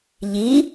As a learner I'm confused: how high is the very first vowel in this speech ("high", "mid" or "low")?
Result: high